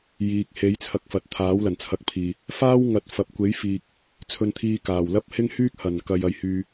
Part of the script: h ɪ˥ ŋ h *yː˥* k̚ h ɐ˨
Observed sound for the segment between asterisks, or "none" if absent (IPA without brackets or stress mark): yː˥